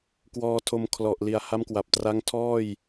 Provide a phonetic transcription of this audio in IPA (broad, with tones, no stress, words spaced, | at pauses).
kwɔː˧tʰo˧m kʰlɔ˨˩ʔli˨˩a̯ ha˦˥mkwa˨˩p̚tra˦˥ŋ tʰɔː˥˩j